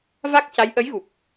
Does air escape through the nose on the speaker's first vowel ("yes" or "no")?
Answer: no